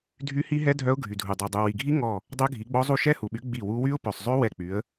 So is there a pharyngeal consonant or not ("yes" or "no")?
no